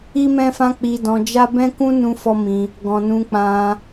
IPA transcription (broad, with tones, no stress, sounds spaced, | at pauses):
i˦ m ɛ̃˦ f ã˦ k͡p i˧ d ɔ̃˧ d͡ʒ a˦ b ɛ̃˦ k ũ˦ n ũ˦ f ɔ˦ m ĩ˧ | ɡ ɔ̃˨ n ũ˧ k͡p ã˧